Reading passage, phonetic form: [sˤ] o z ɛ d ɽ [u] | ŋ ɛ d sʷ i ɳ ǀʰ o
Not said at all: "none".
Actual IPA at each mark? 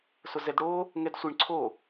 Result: s, o

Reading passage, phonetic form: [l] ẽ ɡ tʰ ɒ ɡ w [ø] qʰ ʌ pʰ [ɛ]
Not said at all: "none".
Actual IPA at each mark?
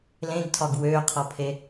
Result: l, ø, e

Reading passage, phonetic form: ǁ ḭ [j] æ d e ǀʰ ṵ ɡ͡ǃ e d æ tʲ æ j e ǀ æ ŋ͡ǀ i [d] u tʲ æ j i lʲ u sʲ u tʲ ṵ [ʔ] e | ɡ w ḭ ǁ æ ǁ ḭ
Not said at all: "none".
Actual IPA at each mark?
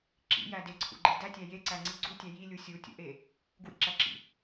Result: j, ɡ͡ǀ, ʔ

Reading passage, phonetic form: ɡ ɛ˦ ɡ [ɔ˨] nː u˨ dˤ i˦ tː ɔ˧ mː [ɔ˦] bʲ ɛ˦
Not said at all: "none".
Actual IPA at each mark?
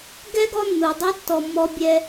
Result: ɔ˧, ɔ˦

